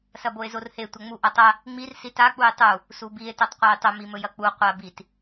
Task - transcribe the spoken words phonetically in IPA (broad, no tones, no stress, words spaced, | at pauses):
sɐboe̯zorhe tʷɐŋ͡mu ʔɐtˤɐ | ŋ͡mir sita k͡pujtˤu | subie̯ tɵtˤqʷajtˤɵm imɵjɐk͡pu qʷa bit